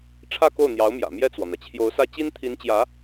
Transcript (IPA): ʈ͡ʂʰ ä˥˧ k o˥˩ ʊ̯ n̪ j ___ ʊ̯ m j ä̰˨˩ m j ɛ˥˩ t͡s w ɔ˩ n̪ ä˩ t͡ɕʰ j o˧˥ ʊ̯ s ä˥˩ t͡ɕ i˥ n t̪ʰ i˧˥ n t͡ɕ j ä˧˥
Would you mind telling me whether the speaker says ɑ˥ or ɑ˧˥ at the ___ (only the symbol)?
ɑ˧˥